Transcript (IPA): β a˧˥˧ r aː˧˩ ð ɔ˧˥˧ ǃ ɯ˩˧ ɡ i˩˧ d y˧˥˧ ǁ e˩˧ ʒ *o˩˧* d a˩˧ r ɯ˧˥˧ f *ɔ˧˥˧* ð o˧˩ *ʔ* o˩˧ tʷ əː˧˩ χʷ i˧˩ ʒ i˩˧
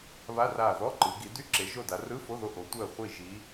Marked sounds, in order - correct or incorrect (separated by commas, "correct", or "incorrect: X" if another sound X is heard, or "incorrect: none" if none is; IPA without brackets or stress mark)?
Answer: incorrect: o˧˩, incorrect: o˧˥˧, correct